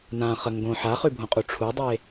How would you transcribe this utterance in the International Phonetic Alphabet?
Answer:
nã χəŋɡõ ħaχʉbʱõqʼu ʈ͡ʂʰudˤe

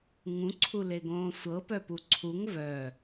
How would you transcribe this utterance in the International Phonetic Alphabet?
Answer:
ŋũǀʰuleɡõː sʷɤpœpu ǀʰuŋ vœ

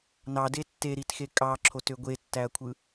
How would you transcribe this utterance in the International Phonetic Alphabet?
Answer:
nɑde tːeɾitxe kʼɑǁʰotø ɡʷetːæɐ̯kʷʰɯ

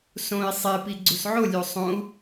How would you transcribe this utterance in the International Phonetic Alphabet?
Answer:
sõi̯ sˤepi ɡ͡ǀusʕolʲo sˤõu̯

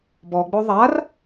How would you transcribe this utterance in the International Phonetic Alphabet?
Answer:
bɔɡ͡bo ðˤar

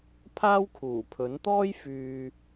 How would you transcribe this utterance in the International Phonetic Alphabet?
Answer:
pʰaː˥wkʰuː˨˩pʰɵ˨˥nt̪ɔː˥j fyː˨

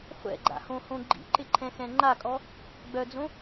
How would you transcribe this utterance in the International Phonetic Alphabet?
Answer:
χʷɛ̰ɡ͡ǃa̰hõhõ ɡ͡ǃḭǃɪǃʰɛ̃xɛ̃ ŋ͡ǃakʼɔ | ɡ͡bœd͡zõ

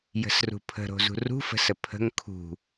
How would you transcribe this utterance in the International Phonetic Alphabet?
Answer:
jə̤srṳpʰə̤ɾo̤ zṳrṳfə̤sə pʰə̤ŋ kʰṳ

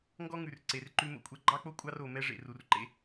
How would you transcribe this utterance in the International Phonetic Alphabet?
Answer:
ŋɡɔ˦ŋʉ˨rǀe˨r ǃʉ˦mo̰˦kʷʼɛ˦ ɡ͡ǃɑ˦k͡po˦ kʷʼɑ˦ro˨ mɛ˦ʐḛ˨ ru˨rǃḛ˦

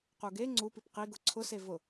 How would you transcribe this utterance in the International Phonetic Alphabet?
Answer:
quɡe ŋ͡ǀupip qiɡʊ ǀʰʊse vʊ

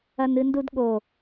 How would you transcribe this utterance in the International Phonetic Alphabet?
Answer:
ɐnɨndudɠo

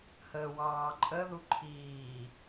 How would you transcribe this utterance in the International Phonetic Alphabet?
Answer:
həːwɑːǃʼəðu ǃʰiː

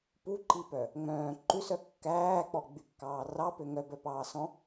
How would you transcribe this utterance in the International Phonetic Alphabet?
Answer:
puǃipœ | ŋ͡mœ̃ː ǃʉsœ kːæːk͡pɔ ɡ͡bykːɑːrɑpø ŋœbœpɑːsɔ̃

